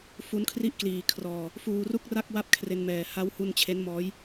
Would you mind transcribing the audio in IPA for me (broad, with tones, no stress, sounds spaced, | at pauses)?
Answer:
f u˦˥ n kʰ r i˥˩ ʔ k l iː˨˩ kʰ r ɔː˧ | f uː˧ r u˥˩ k̚ r a˥˩ k̚ w a˥˩ p̚ kʰ r e˧ n m ɛː˨˩ h a˦˥ w h u˧ n t͡ɕʰ e˦˥ n m ɔː˦˥ j